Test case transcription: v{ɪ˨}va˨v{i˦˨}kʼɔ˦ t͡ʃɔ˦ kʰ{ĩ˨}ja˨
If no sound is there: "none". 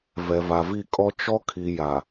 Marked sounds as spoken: ɛ˨, i˦˨, i˨

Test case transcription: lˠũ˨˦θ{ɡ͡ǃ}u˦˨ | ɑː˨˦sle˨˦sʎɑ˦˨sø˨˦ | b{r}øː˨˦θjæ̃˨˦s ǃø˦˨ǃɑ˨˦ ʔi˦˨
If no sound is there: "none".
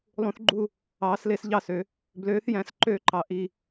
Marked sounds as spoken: ɡ͡ǃ, l

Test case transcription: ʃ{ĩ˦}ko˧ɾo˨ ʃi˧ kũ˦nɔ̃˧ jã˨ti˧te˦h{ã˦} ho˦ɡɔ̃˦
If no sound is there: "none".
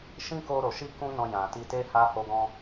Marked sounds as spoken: ĩ˦, a˦

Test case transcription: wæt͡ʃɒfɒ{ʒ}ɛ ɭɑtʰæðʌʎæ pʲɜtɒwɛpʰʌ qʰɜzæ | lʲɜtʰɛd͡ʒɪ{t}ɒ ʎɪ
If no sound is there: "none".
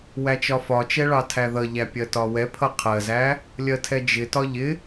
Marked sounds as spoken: t͡ʃ, t

